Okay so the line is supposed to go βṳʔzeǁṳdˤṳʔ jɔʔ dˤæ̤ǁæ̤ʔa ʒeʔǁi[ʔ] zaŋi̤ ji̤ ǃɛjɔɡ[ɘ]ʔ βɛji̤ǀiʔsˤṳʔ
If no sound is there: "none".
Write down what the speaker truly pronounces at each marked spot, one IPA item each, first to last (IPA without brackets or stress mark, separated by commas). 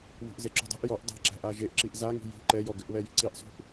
ʔ, ɘ